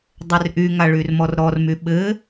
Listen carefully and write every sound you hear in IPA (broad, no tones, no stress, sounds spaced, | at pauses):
dˤ ɘ r ʔ y ŋ a ɭ y r m ɔ r ɾ ɔ r m y ɓ ɘ